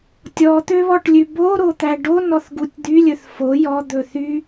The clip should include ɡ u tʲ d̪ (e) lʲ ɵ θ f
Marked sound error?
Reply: yes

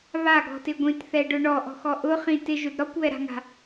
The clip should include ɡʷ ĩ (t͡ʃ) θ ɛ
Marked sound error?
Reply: yes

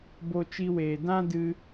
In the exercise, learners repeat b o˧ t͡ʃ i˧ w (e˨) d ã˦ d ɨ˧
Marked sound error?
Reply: yes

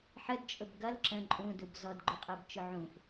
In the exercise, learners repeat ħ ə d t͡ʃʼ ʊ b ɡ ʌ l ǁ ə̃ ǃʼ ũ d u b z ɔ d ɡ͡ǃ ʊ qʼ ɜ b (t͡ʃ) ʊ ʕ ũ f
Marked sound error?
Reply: no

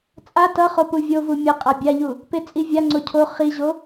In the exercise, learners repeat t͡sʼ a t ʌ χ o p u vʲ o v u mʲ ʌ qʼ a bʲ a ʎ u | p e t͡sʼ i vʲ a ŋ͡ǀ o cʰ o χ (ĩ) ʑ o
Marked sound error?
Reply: yes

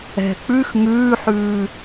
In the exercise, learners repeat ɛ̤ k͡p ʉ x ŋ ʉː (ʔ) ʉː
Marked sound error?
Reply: yes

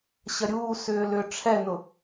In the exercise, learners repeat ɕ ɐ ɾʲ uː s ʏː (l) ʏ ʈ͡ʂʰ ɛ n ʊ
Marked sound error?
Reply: no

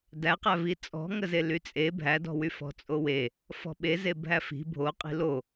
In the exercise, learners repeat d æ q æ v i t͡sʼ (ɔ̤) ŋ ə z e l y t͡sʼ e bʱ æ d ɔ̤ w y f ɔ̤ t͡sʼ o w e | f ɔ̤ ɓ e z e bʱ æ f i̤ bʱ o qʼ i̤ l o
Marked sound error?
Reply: no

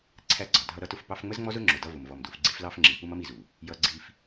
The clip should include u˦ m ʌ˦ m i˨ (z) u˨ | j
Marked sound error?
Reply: no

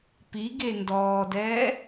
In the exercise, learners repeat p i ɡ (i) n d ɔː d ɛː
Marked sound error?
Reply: yes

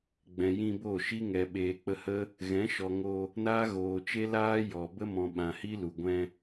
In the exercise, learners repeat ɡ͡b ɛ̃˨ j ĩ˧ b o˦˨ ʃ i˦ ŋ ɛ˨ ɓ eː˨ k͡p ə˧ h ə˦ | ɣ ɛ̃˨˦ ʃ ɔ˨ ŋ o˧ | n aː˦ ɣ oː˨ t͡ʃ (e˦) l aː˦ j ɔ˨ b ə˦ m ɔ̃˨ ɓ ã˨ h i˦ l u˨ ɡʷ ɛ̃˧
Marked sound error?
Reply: no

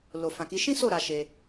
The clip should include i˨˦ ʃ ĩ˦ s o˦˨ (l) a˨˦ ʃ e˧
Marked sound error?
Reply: yes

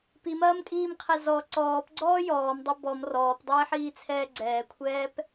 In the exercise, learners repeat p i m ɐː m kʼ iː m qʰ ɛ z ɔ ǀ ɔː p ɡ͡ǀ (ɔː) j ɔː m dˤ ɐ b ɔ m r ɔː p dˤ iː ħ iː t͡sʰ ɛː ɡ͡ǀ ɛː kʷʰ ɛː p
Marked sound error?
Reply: no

